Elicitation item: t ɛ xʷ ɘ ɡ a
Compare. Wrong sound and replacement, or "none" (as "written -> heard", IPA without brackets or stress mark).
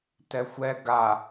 ɘ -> ɛ